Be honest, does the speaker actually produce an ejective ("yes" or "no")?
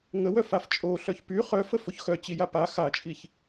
yes